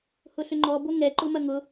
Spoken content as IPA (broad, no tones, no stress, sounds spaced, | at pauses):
h ʊ ɬ ʏ ŋ͡ǃ ɔ b o ŋ ɛ ǃ ʊ m ɐ ŋ ʊ